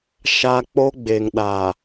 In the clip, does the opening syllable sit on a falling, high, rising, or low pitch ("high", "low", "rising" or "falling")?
high